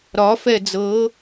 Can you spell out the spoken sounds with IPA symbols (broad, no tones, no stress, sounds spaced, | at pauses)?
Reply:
ɾ ɒ f ɛ d͡z ɤ